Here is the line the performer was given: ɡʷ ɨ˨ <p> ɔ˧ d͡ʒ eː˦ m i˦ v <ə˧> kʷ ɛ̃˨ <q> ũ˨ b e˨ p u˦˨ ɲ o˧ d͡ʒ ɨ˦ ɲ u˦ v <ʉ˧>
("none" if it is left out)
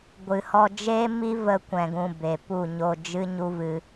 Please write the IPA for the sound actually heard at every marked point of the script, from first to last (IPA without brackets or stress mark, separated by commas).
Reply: h, ə˧, ɡ, ɨ˧